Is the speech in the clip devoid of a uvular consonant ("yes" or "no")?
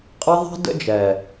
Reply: no